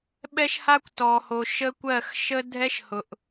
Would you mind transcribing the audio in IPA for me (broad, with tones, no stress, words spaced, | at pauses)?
ɓɛ˦ʃha˦kʷtɔ˨ho˨ ʃə˦kʷɜ˦˨x ʃə˦dʱɛ˦ʃhʊ˨ʔ